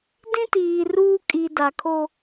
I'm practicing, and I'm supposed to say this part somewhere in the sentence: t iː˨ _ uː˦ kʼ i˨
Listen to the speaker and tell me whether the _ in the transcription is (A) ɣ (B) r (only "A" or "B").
B